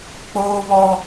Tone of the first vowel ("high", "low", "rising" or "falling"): high